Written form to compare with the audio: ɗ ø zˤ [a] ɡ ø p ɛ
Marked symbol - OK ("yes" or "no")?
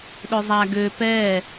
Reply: yes